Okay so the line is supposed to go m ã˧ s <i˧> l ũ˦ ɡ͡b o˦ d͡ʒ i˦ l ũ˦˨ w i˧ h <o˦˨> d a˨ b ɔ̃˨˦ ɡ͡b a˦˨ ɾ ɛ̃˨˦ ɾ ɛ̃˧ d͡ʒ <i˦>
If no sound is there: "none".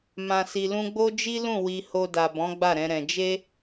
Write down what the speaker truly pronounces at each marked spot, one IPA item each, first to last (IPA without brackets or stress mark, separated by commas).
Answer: i˧, o˧, e˦